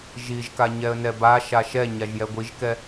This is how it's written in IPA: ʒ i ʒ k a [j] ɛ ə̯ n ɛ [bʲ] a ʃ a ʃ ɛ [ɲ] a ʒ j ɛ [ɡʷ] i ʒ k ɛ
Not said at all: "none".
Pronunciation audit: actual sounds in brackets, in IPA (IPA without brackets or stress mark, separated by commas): ɲ, b, ɲ, ɡʷ